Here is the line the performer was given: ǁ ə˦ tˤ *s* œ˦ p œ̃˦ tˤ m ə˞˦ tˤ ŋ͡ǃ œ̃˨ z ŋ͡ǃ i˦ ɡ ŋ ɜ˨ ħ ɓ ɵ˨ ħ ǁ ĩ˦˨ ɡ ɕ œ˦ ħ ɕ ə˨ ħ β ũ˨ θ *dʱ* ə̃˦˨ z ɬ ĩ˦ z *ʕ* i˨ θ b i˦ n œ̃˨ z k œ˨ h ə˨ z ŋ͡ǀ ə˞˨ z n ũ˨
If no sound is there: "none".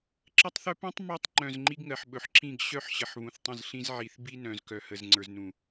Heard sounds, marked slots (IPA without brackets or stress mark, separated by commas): θ, tˤ, ʕ